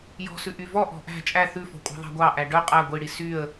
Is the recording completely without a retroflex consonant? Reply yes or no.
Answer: no